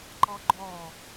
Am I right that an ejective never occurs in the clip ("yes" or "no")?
yes